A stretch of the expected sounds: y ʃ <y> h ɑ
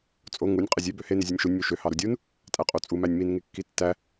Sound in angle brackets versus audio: incorrect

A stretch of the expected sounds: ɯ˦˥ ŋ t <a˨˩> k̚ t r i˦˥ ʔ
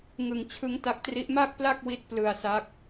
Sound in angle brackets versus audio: incorrect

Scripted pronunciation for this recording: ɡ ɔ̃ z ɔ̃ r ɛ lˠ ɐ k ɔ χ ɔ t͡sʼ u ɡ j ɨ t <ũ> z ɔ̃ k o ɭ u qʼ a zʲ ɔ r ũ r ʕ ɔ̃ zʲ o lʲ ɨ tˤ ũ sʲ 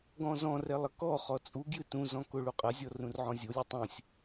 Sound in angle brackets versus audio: correct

